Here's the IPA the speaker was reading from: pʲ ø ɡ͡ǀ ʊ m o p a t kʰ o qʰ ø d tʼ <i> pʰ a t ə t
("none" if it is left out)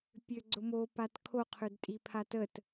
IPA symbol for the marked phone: i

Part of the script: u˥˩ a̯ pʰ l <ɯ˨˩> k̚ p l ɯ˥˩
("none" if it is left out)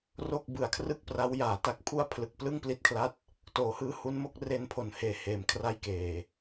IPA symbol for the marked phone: ɯ˨˩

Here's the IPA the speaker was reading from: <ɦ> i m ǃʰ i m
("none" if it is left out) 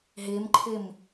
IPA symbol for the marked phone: ɦ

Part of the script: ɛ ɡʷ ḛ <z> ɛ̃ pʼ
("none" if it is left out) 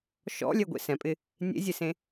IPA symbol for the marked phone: s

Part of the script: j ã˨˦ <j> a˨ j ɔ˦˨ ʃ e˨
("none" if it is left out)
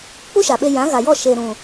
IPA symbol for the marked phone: ɣ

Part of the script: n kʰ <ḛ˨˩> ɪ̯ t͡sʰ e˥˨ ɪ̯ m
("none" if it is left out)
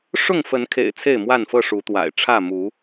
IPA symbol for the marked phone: ḛ˨˩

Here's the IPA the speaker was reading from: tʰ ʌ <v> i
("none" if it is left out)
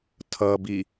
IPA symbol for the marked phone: b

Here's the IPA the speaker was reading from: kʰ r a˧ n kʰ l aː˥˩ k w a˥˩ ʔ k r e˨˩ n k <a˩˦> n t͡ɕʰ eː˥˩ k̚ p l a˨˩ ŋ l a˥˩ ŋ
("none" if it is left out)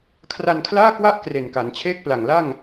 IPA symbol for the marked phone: a˩˦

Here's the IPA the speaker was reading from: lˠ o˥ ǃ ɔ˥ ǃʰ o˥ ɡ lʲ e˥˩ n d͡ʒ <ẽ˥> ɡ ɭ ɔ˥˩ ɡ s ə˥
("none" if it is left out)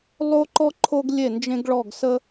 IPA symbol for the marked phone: ẽ˥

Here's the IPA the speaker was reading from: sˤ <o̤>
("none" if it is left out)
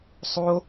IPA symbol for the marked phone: o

